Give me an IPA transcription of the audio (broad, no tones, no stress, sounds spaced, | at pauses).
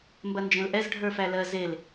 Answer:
m b ɐ n d͡ʒ ẽ l ʔ ɛ z ɖʱ ə˞ f æ l ɜ z e l